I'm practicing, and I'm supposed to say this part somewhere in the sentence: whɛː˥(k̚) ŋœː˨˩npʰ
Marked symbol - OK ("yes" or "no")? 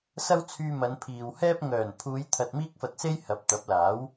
no